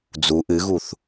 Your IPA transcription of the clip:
d͡z u ʔ ɨ ɣ u θ

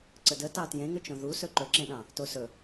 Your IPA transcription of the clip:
ǀ ə d ə t ɑ t j ẽ ŋ ɵ t͡ʃ õ ð u s ɵ ǃ ɵ ǁ ẽ ɗ ɑ̃ | t o s ɵ

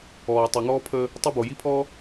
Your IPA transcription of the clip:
ɔː˨ tˤ ø˨ ŋ ɔː˦ pʰ əː˦ | tˤ ø˦ b o˨ j i˦ pʰ ɔː˦

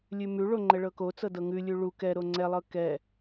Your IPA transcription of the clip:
lʲ ʉ m ʉ ɭ o ŋ͡ǃ ɛ ɭ ɤ k o t͡s ɤ d ɤ ŋ ʉ lʲ ʉ ɭ u k ɛ ɾ o ŋ͡ǀ ɛ lˠ ɤ k ɛ

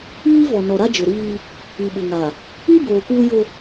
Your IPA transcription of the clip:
iː˦ v ɔ˨ n ɔ˨ ɾ a˦ d͡ʒ ʊ˨ ɾ iː˦ | i˨ ɓ ʊ˨ ŋ a˨ | i˦ b oː˨ k uː˦ j o˦

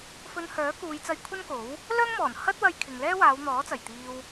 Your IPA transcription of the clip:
f ɵ˧ n h œː˨˥ k uː˨˧ j t͡s ɐ˧ j kʷʰ ɐ˥ n k o˨˥ w | l œː˥ ŋ m ɔː˨˩ n h ɐ˥ t̚ w ɐ˧ j kʰ ɪ˨ ŋ l ɛː˥ w aː˨˧ w n̪ ɔː˨˥ t͡s ɐ˨˩ j t̪ iː˧ w

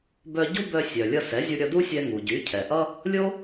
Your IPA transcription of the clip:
b œ˧ ɟ u˥ b œ˧ sʲ œ˩ lʲ ʌ˧ s ɛ˩˥ zʲ u˧ ɾʲ ʌ˧ d u˥ sʲ ɛ˧ ŋ u˩ ɟ y˩˥ cʰ ɛ˩ ʔ ʌ˥ | lʲ o˥

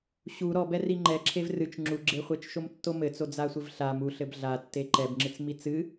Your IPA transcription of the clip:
ɕ u ɾ ɔ b ɛ r i ŋ͡ǃ ɛ ǁʰ e v r ɨ t͡ʃ ŋ͡ǁ u ɡ͡ǁ e χʷ e t͡ʃ ʃ o m tː o m ɘ t͡s o d͡z a sʷ ɘ v ɬ a m u ɬ ɘ b ɮ a tː e ǃ ɛ b ŋ͡ǁ ɨ t͡s m i t͡s ɨ

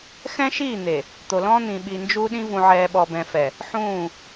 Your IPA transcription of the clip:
x ɛ̃˦ ʃ iː˦˨ n̪ e˨ | t̪ o˨ l ɔ̃ː˦ n̪ ĩ˨ ɓ i˨ n d͡ʒ u˦ ɗ ĩ˦ v ũ˨ ʕ ɛː˨ ɓ ɔ˨ b ɛ̃˨ f ɛ˨ | ħ ũː˦˨

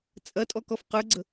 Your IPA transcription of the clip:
t͡sʼ ɐ tʼ ɔ k ɔ f q ə˞ ɡ͡ǀ ə

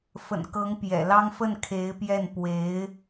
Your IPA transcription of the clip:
f ə̰˨˩ n k ɤ˧˥ ŋ p j ɛ̰˨˩ l ɑ˥ ŋ f ə˥˩ n kʰ e˧˥ ɪ̯ p j ɛ˥˩ n p w e˧˥ ɪ̯

